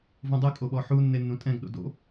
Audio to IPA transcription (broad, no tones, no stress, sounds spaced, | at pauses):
v ũ dˤ ɯ kʼ o ɓ ɔ ħ u nː e nː ũ tʼ ɛ̃ ɡ ɗ o̰ d o̰